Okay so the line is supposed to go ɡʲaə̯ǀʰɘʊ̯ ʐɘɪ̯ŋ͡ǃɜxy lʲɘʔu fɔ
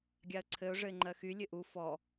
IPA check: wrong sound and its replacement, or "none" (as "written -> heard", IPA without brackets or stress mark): none